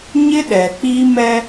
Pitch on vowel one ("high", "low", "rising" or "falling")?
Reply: high